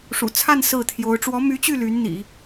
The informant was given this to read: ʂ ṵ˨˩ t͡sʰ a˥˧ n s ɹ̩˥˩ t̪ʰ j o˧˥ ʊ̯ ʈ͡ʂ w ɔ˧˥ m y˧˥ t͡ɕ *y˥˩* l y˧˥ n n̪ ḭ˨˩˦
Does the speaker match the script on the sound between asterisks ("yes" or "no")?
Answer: yes